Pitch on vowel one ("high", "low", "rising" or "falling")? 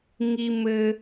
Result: low